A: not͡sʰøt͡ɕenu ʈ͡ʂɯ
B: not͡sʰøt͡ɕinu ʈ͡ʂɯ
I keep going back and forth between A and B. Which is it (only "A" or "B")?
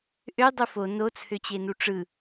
A